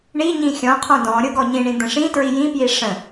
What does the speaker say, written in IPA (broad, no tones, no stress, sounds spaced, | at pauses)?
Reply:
ɳ i ɲ ĩ xʲ ɔ̃ qʰ ɔ̃ d ɔ̃ ɾʲ ɤ ɡ ɔ ɲ ĩ ɳ ĩ d̪ ə̃ ʂ ĩ t ɹ i j ĩ p j i ʂ ə̃